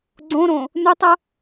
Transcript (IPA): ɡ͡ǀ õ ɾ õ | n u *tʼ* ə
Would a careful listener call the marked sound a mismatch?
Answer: yes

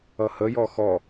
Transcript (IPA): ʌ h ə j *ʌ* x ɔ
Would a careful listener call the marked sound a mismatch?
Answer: yes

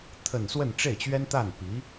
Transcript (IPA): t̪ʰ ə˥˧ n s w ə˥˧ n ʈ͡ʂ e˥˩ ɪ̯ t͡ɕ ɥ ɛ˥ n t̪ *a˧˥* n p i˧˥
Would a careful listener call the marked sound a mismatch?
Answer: yes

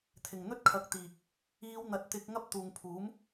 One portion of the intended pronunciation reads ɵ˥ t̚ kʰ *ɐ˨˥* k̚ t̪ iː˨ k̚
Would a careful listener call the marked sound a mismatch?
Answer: no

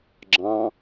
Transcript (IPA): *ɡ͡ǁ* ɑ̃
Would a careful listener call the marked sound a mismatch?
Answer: no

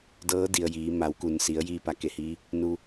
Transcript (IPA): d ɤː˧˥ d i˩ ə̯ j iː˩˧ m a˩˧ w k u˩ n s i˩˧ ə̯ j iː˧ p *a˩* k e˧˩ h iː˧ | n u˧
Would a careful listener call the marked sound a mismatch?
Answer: no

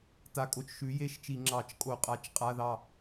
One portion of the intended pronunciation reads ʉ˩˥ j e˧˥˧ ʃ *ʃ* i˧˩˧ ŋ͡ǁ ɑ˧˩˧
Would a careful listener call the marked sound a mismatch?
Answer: yes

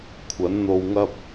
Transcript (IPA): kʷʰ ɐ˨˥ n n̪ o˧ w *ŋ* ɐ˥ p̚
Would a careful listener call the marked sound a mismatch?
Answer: no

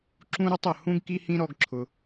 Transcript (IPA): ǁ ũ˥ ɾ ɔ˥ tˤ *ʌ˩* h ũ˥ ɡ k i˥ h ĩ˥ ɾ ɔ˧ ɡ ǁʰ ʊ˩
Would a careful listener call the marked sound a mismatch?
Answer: no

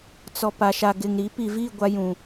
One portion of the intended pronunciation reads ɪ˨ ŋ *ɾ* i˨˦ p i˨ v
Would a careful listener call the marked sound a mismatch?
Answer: no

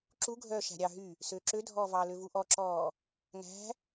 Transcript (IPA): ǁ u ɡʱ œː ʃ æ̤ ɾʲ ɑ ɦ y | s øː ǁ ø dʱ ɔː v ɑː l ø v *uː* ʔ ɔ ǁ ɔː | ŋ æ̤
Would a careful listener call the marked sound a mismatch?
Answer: yes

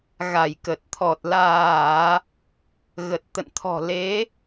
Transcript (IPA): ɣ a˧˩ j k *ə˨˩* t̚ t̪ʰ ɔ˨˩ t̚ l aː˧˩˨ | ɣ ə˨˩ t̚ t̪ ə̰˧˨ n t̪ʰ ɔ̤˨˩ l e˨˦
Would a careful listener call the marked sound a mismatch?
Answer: no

